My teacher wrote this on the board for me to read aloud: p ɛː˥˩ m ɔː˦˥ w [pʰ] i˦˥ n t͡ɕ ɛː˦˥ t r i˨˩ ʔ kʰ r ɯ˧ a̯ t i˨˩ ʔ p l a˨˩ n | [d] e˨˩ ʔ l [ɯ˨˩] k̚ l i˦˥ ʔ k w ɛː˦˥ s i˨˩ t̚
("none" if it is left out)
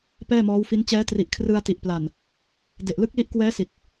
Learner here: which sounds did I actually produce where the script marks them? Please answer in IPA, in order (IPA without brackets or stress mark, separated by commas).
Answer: f, d, ɯ˦˥